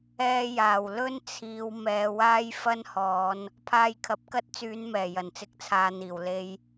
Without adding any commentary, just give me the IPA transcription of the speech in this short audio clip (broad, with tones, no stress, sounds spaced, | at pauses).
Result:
ɛː˧ j aː˨˩ w l ɵ˥ n t͡sʰ iː˨˧ w m ɛː˨˧ w aː˥ j f ɐ˥ n h ɔː˨˧ n | pʰ aː˧ j kʰ ɐ˨ p̚ k ɐ˥ t̚ t͡s yː˨˧ n m ɛː˨˩ j ɐ˨˩ n t͡s ɪ˨˥ k̚ t͡sʰ aː˨ n̪ iː˨˩ w l e˧ j